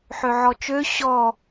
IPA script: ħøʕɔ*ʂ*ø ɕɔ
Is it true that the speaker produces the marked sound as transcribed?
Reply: no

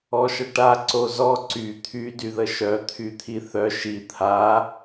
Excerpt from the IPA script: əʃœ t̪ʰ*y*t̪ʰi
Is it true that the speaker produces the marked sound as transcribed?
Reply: yes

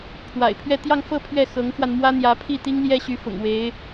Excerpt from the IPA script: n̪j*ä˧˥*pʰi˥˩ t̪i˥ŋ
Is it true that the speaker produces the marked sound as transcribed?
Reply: yes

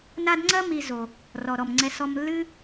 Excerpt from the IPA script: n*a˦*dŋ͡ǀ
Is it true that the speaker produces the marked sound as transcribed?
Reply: yes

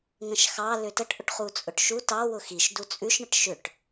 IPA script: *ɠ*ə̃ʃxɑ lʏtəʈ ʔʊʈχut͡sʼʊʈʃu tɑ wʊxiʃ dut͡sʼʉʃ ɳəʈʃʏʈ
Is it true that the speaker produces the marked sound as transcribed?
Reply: no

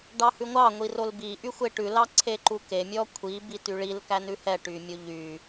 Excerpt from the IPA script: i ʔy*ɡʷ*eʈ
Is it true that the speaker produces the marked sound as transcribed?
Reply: no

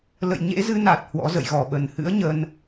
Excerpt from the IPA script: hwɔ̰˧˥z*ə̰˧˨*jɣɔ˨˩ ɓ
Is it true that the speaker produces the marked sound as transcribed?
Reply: yes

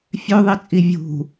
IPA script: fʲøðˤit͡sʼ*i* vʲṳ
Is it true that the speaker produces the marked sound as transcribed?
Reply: yes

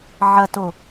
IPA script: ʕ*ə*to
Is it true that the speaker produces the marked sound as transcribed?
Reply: no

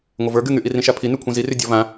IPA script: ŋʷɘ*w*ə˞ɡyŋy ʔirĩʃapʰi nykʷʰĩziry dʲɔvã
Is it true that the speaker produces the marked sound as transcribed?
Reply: no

